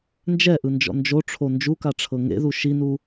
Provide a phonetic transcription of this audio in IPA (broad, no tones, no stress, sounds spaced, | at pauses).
n d͡ʒ ɛ ʔ ɯ n d͡ʒ ɔ̰ n d͡ʒ o ʈ͡ʂʰ o n d͡ʒ u k a ʈ͡ʂʰ ɤ ŋ ḛ ð u ʃ i n u